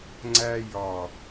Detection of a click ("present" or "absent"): present